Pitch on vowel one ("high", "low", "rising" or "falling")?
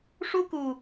high